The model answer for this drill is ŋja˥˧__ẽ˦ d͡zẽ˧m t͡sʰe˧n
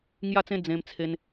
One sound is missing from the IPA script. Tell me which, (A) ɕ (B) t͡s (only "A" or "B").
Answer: B